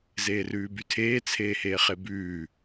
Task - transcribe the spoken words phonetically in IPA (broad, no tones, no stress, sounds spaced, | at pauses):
z eː r ʉː b y tʰ eː t͡sʰ eː h eː χ e b ʉː